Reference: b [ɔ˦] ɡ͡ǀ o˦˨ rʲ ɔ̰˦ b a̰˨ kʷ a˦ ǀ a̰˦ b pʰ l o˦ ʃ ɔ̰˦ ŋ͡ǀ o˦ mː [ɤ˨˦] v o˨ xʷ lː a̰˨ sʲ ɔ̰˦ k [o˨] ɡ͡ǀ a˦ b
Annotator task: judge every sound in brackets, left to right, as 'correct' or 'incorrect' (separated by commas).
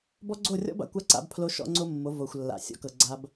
correct, incorrect, incorrect